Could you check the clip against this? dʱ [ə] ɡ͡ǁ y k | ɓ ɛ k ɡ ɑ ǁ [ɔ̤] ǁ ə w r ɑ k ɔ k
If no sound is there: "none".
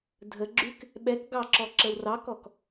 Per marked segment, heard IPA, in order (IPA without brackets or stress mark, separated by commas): ə, ɔ